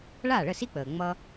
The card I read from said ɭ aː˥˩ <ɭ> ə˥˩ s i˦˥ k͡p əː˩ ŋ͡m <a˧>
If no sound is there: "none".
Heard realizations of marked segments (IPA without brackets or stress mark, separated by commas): ɭ, ʌ˧